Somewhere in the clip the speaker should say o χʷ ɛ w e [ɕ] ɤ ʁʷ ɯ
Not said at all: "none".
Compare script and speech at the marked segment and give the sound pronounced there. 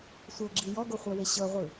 ɕ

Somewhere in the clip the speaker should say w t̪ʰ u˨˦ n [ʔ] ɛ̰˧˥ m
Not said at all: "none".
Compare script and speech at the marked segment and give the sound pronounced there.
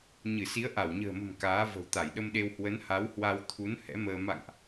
h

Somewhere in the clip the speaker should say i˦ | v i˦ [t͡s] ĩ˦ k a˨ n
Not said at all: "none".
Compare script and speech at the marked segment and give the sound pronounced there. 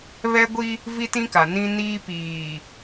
t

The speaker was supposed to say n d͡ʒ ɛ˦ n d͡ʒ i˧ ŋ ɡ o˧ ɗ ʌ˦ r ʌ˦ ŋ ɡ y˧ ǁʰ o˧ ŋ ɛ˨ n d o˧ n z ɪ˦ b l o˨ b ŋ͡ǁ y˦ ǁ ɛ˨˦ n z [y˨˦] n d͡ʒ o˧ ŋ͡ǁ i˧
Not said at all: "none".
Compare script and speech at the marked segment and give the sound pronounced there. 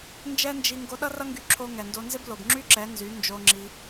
y˨˦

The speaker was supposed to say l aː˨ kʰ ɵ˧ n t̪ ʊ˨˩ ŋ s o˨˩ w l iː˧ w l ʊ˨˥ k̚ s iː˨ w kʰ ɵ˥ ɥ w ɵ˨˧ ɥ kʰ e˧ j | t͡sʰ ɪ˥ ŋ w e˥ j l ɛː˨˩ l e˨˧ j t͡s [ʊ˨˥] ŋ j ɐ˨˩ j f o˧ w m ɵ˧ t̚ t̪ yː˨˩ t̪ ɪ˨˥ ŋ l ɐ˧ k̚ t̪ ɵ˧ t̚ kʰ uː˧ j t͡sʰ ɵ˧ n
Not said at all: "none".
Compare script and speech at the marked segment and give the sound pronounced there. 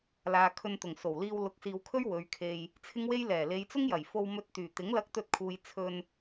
ʊ˥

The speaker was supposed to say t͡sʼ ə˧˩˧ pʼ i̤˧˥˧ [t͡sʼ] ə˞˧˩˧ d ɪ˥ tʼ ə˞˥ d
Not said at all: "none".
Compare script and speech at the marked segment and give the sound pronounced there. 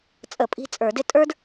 t͡sʼ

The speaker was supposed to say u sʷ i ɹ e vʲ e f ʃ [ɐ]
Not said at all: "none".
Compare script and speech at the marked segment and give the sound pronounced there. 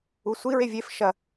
ɐ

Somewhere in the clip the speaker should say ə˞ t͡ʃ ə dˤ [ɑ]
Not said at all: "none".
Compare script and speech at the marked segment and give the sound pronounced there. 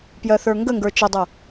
ʌ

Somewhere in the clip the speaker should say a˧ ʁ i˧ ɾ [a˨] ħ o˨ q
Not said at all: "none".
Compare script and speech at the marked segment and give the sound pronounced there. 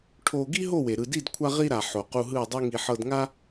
a˨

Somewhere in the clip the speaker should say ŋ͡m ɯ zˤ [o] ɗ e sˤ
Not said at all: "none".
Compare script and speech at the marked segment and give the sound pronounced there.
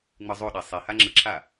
o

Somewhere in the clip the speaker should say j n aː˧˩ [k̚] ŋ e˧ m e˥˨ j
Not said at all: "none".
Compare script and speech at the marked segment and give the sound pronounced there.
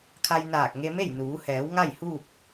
k̚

